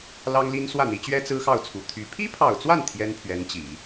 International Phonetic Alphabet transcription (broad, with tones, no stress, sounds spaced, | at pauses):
l ɑ˥ ŋ l i˥ n s w ä˥˩ n̪ i˧˥ t͡ɕ ɥ ɛ˥ t͡s ɹ̩˥ x ɑ˥˩ ʊ̯ t͡sʰ u˨˩ t̪ʰ y˧˥ pʰ i˥ pʰ ɑ˨˩ ʊ̯ t͡s w a˥˩ n t̪ʰ j ɛ˥ n pʰ ɥ ɛ˧˥ n t͡ɕ i˨˩˦